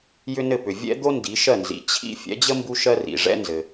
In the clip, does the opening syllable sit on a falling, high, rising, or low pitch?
high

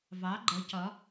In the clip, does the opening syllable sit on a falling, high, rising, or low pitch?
rising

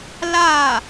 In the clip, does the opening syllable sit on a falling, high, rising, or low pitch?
falling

